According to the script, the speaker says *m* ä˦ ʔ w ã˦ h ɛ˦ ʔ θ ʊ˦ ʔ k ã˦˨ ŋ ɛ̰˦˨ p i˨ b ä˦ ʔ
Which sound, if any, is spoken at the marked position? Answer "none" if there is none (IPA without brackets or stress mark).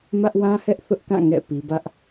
m